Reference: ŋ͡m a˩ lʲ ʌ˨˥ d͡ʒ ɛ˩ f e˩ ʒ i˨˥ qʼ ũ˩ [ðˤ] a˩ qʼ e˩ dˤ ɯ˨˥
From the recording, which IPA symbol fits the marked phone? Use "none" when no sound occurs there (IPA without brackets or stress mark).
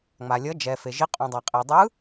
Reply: dˤ